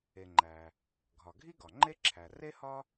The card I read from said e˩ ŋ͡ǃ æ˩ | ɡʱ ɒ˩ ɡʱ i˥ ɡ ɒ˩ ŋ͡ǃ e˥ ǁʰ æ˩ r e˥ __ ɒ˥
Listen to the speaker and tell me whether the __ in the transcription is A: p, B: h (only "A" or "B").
B